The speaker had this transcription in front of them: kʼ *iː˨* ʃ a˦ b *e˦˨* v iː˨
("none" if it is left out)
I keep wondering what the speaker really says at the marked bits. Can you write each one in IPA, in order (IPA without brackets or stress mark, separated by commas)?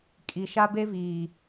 i˨, e˦